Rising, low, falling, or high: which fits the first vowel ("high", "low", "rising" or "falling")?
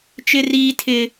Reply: high